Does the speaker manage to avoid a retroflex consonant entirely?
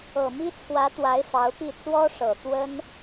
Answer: no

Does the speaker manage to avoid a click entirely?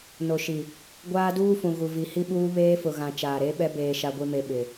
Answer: yes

